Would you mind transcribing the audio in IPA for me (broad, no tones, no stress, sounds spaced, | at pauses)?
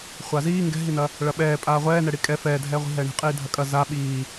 χʷ a z iː ŋ ɡ ɛ̤ ɦ i n ɐ | ɭ ɐ ɓ ɛː pʼ aː ʁʷ ɛː n ɛ ɽ i kʼ ɛ f ɛː dʱ ɛː ʁʷ i̤ ɦ ɛː ɳ i̤ qʼ iː dʱ ɐ kʼ ɐ z a ɓ iː